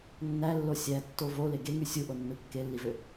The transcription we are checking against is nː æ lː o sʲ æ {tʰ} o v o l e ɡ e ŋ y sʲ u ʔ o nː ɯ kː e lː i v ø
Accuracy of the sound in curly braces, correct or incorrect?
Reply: incorrect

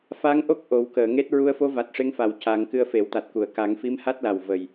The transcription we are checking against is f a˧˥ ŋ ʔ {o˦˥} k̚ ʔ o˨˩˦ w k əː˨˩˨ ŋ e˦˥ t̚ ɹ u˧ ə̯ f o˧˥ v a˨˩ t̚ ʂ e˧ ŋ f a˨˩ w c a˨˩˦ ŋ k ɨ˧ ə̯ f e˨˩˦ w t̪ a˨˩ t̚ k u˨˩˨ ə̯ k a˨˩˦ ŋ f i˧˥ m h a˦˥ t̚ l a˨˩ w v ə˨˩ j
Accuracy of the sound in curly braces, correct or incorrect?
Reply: correct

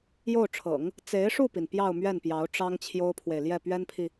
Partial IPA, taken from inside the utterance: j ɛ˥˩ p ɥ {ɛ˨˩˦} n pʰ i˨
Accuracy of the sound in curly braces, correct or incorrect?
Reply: incorrect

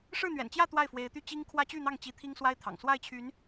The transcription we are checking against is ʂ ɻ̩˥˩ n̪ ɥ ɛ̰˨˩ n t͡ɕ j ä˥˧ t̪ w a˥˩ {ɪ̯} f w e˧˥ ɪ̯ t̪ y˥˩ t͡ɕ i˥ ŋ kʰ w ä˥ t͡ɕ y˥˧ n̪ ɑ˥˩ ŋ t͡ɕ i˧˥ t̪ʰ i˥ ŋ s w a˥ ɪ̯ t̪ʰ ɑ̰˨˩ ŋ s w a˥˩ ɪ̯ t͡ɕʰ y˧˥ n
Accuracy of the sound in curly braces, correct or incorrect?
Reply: correct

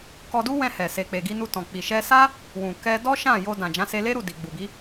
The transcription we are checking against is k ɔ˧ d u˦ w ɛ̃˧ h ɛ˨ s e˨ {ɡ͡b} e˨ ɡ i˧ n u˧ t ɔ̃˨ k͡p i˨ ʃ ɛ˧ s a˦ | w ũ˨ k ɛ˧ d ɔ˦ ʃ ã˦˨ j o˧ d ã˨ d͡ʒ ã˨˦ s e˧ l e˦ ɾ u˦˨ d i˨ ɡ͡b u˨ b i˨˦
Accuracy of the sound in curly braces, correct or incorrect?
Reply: incorrect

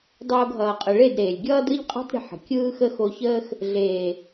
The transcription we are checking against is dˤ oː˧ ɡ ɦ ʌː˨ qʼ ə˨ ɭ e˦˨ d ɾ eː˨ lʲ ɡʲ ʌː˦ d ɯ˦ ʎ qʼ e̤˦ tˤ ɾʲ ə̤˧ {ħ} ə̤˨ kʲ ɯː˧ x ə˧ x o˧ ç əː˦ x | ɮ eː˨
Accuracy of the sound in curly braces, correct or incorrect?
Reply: correct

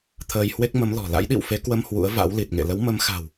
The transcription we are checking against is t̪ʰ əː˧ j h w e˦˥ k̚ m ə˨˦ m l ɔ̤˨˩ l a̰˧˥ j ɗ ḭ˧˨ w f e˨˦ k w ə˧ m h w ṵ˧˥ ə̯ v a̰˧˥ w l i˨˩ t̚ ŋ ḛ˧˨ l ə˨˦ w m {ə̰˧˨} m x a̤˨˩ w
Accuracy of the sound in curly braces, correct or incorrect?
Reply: incorrect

